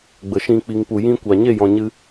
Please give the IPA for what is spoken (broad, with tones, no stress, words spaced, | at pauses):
ɡ͡bə˨ʃĩ˧ k͡pi˨ŋpu˨ jĩ˧kʷa˨ɲe˦˨jɔ̃˨ ɲɨ˧